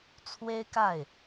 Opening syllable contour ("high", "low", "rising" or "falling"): high